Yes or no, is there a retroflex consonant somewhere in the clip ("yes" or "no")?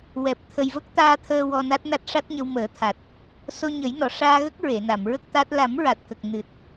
yes